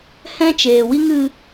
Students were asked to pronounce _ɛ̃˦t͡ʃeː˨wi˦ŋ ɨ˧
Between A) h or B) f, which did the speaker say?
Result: A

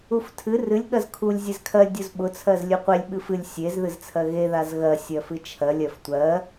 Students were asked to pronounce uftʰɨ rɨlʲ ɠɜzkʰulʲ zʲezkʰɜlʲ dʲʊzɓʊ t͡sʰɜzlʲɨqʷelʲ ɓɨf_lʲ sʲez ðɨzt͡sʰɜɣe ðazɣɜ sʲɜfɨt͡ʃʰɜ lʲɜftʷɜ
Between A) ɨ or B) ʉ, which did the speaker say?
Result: A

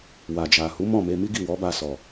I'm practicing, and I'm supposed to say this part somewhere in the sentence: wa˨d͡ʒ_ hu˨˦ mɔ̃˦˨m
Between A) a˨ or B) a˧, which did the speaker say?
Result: A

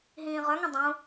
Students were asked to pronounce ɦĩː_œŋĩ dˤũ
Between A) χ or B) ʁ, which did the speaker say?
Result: B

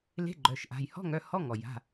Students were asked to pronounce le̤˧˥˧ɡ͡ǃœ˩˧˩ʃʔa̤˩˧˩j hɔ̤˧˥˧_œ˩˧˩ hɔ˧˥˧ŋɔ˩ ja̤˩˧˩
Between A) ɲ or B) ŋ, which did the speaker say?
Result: B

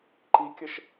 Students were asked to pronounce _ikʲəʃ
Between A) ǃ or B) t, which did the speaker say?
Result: A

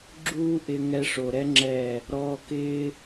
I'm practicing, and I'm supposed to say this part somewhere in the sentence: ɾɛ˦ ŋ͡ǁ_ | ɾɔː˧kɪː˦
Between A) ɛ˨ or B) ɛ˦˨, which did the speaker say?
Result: B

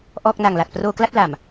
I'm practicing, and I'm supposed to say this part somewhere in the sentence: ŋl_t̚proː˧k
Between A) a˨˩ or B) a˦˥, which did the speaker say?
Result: A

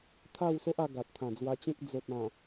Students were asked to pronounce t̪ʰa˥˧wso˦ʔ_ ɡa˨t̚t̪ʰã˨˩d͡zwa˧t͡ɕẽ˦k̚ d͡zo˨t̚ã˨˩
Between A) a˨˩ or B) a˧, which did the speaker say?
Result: B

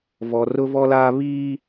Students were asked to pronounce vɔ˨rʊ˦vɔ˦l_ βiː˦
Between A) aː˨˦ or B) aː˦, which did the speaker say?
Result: B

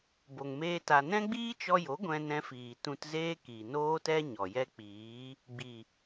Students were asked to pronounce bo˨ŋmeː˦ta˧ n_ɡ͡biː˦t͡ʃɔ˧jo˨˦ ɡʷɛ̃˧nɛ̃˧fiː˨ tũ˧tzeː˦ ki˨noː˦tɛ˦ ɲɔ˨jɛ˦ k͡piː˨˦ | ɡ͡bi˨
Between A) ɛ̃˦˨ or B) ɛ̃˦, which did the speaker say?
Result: B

